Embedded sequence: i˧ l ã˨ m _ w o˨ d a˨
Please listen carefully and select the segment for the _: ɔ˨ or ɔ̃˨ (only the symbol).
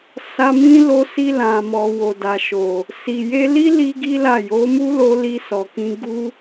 ɔ˨